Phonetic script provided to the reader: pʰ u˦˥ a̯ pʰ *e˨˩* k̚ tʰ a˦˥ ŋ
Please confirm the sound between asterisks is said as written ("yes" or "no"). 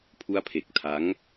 yes